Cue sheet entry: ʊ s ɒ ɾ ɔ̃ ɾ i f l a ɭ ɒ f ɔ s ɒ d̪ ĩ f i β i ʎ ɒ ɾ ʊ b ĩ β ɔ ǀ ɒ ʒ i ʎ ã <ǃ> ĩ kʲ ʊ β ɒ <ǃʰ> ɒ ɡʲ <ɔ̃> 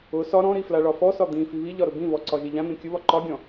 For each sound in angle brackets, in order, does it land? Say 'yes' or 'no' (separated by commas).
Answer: no, no, yes